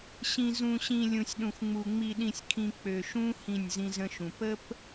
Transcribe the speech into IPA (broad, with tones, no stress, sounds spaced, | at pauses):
ɕ ĩ˨ z ũ˨ ɕ ĩ˨ lʲ ũ˨ sʲ ɗ ũ˨ x ŋ͡m u˨ ŋ͡m i˨ ɗ ĩ˨ sʲ kʰ ĩ˨ k͡p ø˨ ʃ ũ˦ h ĩ˦˨ nʲ z ĩ˦ z ə̃˦ ʃ ũ˨ p ə˦ p